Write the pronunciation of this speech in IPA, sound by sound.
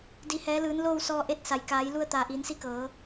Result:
d i˩ h ɛː˩˧ l ɯː˩˧ n l oː˥˨ w s ɔː˧ ʔ e˧˥ t̚ s a˩ j k aː˩˧ j l u˧ ə̯ t̪ aː˩ ʔ iː˩˧ n s i˧ k ɤː˩˧

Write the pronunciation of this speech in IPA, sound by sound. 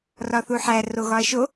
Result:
r ɒ θ u ħ æ r o ɣ ɒ ɐ̯ ʃ o

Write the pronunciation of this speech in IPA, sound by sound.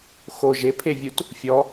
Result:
x o ʒ e pʰ e vʲ u t | fʲ ɔ

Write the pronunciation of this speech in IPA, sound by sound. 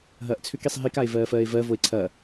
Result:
ɦ ɐː ʔ t͡sʰ ʏ k i sˤ ɦ i k a e̯ v ɜː f ɜː e̯ v ɜ v o e̯ ǀʰ ɐ

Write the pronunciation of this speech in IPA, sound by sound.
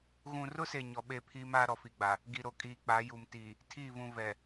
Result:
ɣ ũ˨ r ʊ˦ s e˨ ɲ ɔ˨ ɓ e˦˨ pʰ iː˦ m aː˦ ɾ ɔ˨ f i˨ ɡ͡b a˨ | ɡ i˨ ɾ o˨ kʼ iː˨ k͡p a˨˦ j u˨ m t iː˨ | tʰ iː˦˨ v ũ˨ v ɛ˨

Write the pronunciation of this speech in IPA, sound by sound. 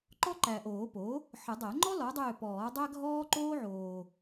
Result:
ǃ ɔ˥ ǃ æ˨ ʔ oː˨˩˦ p o˩˥ | ħ ə˨˩˦ dˤ æ˨˩˦ ŋ͡ǃ ɔ˥ l ɔ˩˥ dˤ ʏː˦˨ p ɔː˨˩˦ dˤ æ˥ ɡʱ ɔː˥ ǃ oː˥ ʕ oː˨

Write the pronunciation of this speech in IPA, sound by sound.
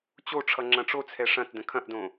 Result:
t͡ɕ o ʈ͡ʂʰ ʌ ŋ͡ǁ ɐ̃ ʈ͡ʂ o t͡sʰ ɛ ʂ ɐ̃ t d ə̃ kʰ ɐ̃ ʔ d õ

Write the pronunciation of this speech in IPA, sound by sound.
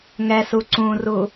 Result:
ŋ ɛ s u ǀ ũ r u

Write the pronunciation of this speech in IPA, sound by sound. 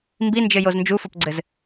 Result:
m b i n d͡ʒ ɘ j o z n d͡ʒ u f o p ɡ͡ǀ ɘ z

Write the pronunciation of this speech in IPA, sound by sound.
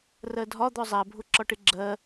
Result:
r ɜ dʱ ɒ d̪ ɔ zˤ æ bʱ ʊ ǁ ɒ ʈ ɪ ɡ͡ǁ ɜ

